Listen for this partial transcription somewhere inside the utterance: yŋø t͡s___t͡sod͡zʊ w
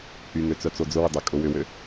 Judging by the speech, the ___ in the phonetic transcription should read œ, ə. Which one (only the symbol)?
œ